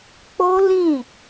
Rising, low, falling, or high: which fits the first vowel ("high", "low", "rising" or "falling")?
high